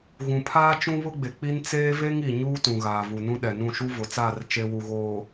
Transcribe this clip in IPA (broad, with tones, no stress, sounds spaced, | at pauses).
ɣ ũ˨ pʰ aː˦ t͡ʃ ũ˦ β ʊ˦ ɡ͡b e˨ k͡p i˦ n t͡s eː˦ v e˦ ŋ i˨ ɲ uː˦ t ũ˨ ɣ aː˨ v u˨ n ũ˦ ɗ ɛ˨ n ũ˦˨ ʃ u˦ v ʊ˨ t͡s aː˦˨ r t͡ʃ e˦ w u˨ ɣ oː˨